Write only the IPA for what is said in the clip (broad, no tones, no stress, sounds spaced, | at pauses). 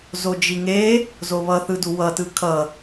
z o d͡ʒ i ŋ e | z o β ʌ θ ɯ d u w ʌ t ɯ kʰ ʌ